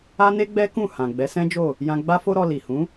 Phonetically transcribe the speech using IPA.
a˦ne˦ɡ͡bɛ˦kũ˦˨ hã˨ ɡ͡bɛ˨˦sɛ̃˦d͡ʒo˦˨ | jã˧ɡ͡ba˦fo˦ɾɔ˧ li˨hũ˨˦

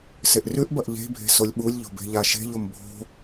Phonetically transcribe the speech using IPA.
seʔrʉʔbɐʔ ʎe̤bʱe̤ solʲɓulʲʎo̤ be̤ʎaʃe̤ʎom bʱo̤

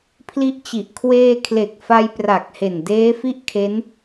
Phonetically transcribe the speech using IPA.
pʰli˦˥ʔt͡ɕi˨˩ʔ kʰweː˧kʰle˨˩k̚ fa˧jpra˨˩k̚he˨˩n deː˦˥fi˥˩ʔkʰe˦˥n

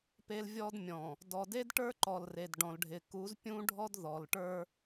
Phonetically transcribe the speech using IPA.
pe˦lvʲɔ˦dmʲɔ̃˨ | dɔ˨de˦dʈə˞˦ǃɔ˨l re˨dɖɔ̃˨lɖʱɪ˨ ku˨˦zpʲũ˦ɖʱɔ˦d ðɔ˨lʈə˞˦

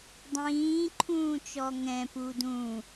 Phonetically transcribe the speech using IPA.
dˤĩːǃʰũːt͡ʃɔ ŋɛ̃pu dũ

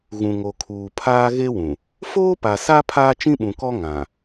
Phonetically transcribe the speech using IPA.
ɣũ˨ŋo˨ kʰuː˨pʰaː˦ɣe˦wũ˨ | foː˦pa˨sa˦ pʰaː˦t͡ʃĩ˦ɓũ˨kɔ˦ ŋã˨

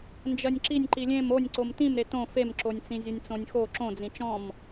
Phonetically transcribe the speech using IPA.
nd͡ʒɜnʲǁinʲ ǃilʲẽm onʲǀom tĩm ɾetõ femǁonʲt͡sĩ zʲonʲt͡sõnʲxo ǁõd͡zĩ t͡ʃɔ̃m

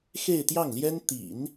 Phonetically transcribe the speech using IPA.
xe˥˧ɪ̯t̪jɑ˥˩ŋljɛ˥n t̪ḭ˨˩˦n

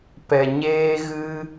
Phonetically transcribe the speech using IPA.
pɛ˨ɲeː˦ ɣɨ˦

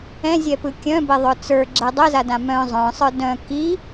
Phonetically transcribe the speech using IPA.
ɛ̃zʲɛpɯ kʲœ̃bɛðˤœ t͡sə˞ɡ͡ǁɛ dˤɛzadã mœ̃ zˤœ̃sˤə˞ dœ̃ ki

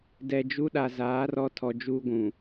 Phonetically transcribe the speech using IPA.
dɛ˨d͡ʒu˦ɗa˨ zaː˨˦rɔ˦ tʰɔ˨d͡ʒuː˦ɡʷũ˨

